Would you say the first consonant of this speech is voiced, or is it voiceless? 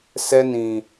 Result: voiceless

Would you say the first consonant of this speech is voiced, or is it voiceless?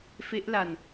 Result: voiceless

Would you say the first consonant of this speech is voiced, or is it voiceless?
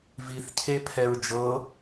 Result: voiced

